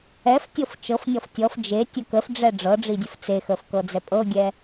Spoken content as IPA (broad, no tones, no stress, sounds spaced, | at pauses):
ɛ f tʲ ɤ f t͡ʃ ɤ f nʲ ɔ f tʲ ɔ f d͡ʒ e tʲ ə k ə f ɖ͡ʐ ɛ ɖ͡ʐ ɤ ɖ͡ʐ i dʲ ə f t͡s e x ə f k ɤ d͡z ɛ pʼ ɤ ɡʲ ɛ